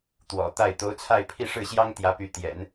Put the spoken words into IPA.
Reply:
t̪ w ɔ̰˨˩ t̪ a˥˩ ɪ̯ t̪ o˧˥ ʊ̯ t͡sʰ a˥˧ ɪ̯ pʰ i˥˧ ʂ ɻ̩˥˩ ɕ j ɑ˥ ŋ t̪ j ä˧˥ p y˧˥ t̪ j ɛ̰˨˩˦ n

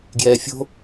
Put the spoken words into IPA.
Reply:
ɡ j ɛː fʲ o̤

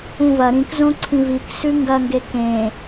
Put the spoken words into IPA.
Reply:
ũ v ɐ ɾ ĩ k z õ ǀʰ ĩ v i k s ʉ ŋ ɡ ɐ ŋ ɡ e k ẽ

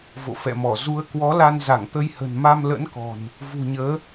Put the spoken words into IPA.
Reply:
v o̰˧˨ f ɛ̰˧˨ m ɔ˧˩ z u˨˦ ə̯ k w ɔ˨˦ l a˧ n z a˧˩ ŋ t̪ ə˧ j h ə̤˨˩ n m a˧ m l ə̰˧˥ n k ɔ̤˨˩ n | v ṳ˨˩ ɲ əː˨˦

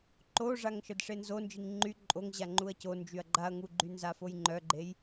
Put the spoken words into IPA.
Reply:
ǃ o ʐ a ŋ ʃ ə d ʂ e n z o n d͡ʒ i ŋ ŋ͡ǃ y ǃʼ o ŋ ʑ a ŋ͡ǃ u ɐ̯ c o n d͡ʒ y ɐ̯ ɡ͡ǃ a ɐ̯ ŋ u ɡ͡ǃ y n z a f o j ŋ͡ǃ œ ɡ͡ǃ e j

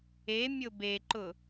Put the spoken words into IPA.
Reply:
e mʲ ʊ b e ǃ ʊ

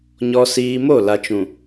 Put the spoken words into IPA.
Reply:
ɲ ɔ˨ s iː˨ m o˦˨ l a˨ t͡ʃ ũ˨

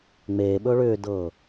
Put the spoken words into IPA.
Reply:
ŋ͡m eː ɓ ɵː ɭ ʏː d ɤː

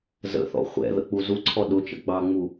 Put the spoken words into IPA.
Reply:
z ə̰ θ ɔ̰ χʷ ɛ̰ ð ə̰ k͡p u z u ǀʰ ɔ ɗ ʊ t͡ʃ ə̰ ɡ͡b ɑ ŋ͡m u

